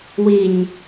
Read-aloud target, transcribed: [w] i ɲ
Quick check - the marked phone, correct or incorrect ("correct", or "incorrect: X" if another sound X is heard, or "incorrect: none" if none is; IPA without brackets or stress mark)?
correct